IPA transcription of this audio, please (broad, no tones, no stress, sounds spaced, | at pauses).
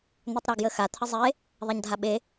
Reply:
n̪ ɵ tˤ ɾ a ɡ j ə x a t̪ʰ ə zˤ e | ðˤ a ɲ dʱ a ɓ e